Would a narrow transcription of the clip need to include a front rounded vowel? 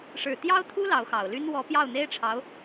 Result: yes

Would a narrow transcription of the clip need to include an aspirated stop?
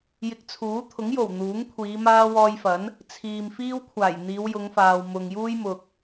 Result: yes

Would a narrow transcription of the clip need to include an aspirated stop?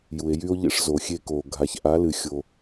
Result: no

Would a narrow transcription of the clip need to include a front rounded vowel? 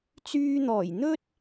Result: yes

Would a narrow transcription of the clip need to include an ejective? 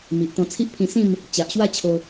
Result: no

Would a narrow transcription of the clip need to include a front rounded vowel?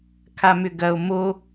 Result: yes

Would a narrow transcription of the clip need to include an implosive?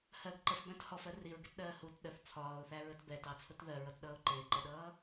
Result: yes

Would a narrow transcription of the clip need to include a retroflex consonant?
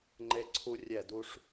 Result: yes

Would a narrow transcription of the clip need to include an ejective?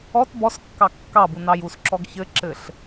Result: no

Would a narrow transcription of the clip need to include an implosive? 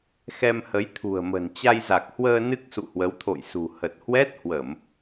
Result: no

